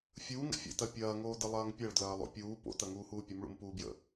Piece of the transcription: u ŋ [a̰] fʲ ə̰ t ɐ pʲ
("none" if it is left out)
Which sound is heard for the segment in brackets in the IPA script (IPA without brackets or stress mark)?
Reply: ə̰